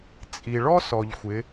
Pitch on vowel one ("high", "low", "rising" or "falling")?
low